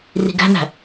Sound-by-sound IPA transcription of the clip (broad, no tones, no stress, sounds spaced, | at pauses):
r i̤ ɡ æ̤ n̪ æ̤